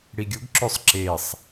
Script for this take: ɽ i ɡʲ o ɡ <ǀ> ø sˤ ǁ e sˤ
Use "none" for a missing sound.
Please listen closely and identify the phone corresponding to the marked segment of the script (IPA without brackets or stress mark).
ǁ